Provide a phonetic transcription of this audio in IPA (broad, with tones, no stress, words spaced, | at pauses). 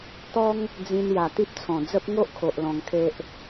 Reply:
t̪ɔ˦ŋ | d͡zĩ˧n ja˨˩t̪i˦p̚t͡sʰɔ̃˨˩ d͡zə˦p̚ ŋo˦ʔ kʰo˨ʔ lɔ̃˧ŋkʰe˦ʔ